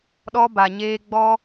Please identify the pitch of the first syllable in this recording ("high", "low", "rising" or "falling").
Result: high